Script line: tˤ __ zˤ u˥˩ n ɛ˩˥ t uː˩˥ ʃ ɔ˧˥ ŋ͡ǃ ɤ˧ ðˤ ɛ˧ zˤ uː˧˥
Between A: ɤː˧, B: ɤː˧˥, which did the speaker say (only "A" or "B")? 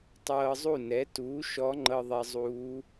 A